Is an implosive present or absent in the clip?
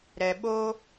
present